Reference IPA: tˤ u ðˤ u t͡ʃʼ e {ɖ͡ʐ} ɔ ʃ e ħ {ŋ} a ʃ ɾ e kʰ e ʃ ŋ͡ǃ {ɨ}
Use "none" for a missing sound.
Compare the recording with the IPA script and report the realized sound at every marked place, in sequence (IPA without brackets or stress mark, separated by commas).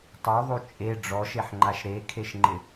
ɖ͡ʐ, ŋ͡ǃ, ɪ